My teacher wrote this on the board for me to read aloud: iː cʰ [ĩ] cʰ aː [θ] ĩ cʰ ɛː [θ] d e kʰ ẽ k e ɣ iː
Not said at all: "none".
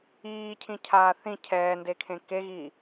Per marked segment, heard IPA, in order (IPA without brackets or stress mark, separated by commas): ĩ, θ, n